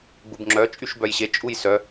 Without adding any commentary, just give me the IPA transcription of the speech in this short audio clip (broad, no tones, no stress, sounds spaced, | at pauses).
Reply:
ɡ͡b u b ŋ͡ǁ œ t͡ʃʼ y ʃ b œ j ɕ e t͡ʃʼ u j s œ